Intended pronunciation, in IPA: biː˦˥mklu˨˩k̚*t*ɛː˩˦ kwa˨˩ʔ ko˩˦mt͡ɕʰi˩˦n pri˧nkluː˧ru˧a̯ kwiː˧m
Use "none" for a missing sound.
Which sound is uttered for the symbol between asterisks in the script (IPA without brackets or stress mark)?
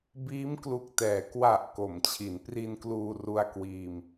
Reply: t